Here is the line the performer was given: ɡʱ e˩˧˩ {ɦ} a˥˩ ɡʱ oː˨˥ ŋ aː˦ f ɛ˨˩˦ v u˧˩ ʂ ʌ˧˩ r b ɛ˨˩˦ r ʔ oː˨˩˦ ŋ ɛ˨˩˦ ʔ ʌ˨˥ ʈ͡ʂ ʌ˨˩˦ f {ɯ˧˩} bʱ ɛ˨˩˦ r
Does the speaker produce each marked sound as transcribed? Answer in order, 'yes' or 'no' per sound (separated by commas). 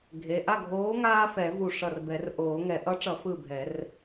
no, yes